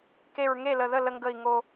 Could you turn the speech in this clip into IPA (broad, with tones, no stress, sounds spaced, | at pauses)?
k e˧˩ ɹ ŋ e˥˩ l ə˧˩ ð ə˥˩ l ə˧ ŋ ɡ ə˧˩ i̯ ŋ o˧